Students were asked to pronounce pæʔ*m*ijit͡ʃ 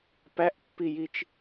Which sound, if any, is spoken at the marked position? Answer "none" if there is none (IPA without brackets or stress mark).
pː